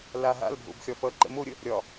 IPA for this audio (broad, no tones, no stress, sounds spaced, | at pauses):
l a ɦ a̰ l bʱ o̰ b xʲ ɒ f ʌ ǃ ə̰ m o ɾʲ ə | ɾʲ ɒ